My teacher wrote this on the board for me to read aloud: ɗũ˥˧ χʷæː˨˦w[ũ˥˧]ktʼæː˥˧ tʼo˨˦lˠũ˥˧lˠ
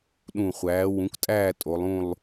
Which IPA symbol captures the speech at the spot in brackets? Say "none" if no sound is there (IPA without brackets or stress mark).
ũ˨˦